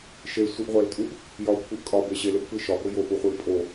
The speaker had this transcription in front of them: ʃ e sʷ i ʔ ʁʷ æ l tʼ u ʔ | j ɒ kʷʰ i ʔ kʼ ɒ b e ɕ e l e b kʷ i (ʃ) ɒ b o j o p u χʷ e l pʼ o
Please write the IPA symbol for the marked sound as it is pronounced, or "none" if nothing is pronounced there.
ʃ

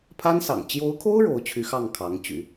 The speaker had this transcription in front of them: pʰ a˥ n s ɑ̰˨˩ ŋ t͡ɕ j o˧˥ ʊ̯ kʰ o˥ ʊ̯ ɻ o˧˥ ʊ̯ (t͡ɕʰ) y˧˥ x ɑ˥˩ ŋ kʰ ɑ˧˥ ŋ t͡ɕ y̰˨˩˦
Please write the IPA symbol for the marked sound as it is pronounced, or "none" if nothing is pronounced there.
t͡ɕʰ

